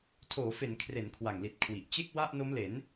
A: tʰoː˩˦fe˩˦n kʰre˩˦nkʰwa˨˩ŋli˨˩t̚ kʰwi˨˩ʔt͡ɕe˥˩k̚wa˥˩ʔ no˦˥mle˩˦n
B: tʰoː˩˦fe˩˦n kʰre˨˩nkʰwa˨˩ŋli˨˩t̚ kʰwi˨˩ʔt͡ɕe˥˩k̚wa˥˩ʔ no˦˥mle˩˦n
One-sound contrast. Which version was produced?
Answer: A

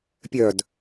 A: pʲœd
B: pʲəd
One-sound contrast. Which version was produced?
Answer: A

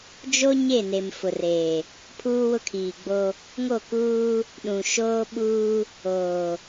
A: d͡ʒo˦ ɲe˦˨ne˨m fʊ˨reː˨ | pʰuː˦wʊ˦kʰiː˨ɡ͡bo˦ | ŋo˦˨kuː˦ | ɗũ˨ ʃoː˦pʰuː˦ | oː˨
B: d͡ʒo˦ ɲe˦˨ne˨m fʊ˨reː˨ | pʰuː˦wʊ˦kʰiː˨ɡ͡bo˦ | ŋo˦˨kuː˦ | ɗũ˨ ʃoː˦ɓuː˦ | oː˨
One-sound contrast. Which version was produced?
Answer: B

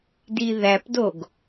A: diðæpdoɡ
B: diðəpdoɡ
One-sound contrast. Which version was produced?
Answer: A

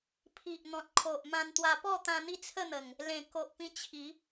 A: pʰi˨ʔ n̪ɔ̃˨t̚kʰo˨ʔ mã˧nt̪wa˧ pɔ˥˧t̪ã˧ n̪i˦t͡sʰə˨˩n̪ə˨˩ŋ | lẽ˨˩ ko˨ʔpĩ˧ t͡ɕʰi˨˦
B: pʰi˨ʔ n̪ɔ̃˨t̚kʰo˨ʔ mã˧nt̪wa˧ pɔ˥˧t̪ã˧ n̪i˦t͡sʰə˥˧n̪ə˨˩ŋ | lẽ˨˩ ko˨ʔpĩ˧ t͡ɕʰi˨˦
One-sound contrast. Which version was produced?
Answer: B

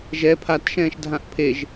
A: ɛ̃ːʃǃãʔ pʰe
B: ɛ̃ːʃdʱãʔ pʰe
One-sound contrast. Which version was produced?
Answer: B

